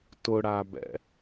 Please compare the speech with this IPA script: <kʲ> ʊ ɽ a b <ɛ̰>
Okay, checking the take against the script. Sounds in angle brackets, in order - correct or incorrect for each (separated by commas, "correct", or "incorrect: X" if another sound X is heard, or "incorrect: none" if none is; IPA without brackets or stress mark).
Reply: incorrect: t, correct